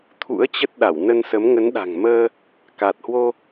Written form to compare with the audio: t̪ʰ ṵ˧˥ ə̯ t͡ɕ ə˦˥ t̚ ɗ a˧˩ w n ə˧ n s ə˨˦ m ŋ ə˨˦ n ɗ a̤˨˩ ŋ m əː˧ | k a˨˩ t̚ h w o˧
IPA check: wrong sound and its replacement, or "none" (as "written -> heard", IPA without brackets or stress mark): none